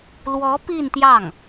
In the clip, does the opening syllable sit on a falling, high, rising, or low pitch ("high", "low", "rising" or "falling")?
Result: rising